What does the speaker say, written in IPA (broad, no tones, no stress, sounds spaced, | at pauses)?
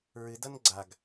ɹ ɨ d ʌ n ɡ͡ǀ a ɡ